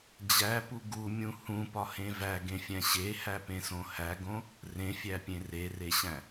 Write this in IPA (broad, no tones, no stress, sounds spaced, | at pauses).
d͡ʑ æ p u ɡ u mʲ ũ h ũ p ɒ h ẽ v æ ɡ ẽ fʲ æ̃ ɕ e h æ p ẽ s õ h æ ɡ õ | r ẽ fʲ æ pʲ ẽ r e r e ɕ æ̃